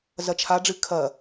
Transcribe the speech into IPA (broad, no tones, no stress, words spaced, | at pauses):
zɐt͡ʃʰaɖ͡ʐɨ kʰɐ